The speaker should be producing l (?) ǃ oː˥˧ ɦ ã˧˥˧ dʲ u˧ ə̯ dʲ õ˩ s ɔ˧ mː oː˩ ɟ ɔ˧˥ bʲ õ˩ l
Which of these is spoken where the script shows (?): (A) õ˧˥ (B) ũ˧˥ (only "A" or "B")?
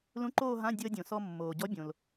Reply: B